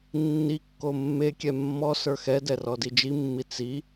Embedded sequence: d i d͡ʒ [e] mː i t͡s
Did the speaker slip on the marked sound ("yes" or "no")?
yes